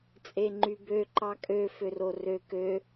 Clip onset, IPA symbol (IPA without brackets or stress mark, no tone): t͡sʼ